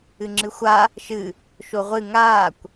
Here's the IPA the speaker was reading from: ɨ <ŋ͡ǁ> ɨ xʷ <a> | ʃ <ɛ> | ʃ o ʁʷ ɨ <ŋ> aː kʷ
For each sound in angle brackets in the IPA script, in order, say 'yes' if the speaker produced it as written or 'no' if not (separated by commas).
yes, yes, no, yes